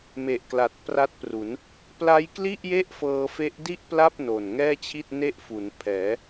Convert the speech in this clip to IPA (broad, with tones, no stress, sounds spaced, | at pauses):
m e˨˩ ʔ k l a˨˩ t̚ p r a˦˥ t̚ p r u˩˦ n | p l a˦˥ j k l i˥˩ ʔ j e˥˩ ʔ f ɤː˧ f e˦˥ ʔ d i˥˩ ʔ p l a˥˩ p̚ n o˨˩ n ŋ ɛː˥˩ t͡ɕʰ i˥˩ t̚ n e˥˩ ʔ f u˩˦ n pʰ ɛː˩˦